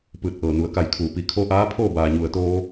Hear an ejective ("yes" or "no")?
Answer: no